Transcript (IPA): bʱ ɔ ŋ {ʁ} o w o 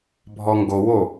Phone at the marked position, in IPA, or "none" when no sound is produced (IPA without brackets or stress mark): ɡ